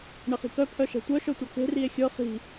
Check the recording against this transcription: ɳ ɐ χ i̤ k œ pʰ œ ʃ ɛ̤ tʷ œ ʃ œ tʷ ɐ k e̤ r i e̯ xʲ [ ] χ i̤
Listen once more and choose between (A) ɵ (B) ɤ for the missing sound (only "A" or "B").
B